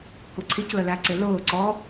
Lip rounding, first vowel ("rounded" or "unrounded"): rounded